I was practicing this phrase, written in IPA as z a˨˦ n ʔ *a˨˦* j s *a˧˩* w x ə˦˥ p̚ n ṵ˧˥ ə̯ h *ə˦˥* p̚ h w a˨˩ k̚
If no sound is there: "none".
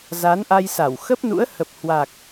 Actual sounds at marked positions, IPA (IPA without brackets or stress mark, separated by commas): a˧, a˧˩, ə˨˩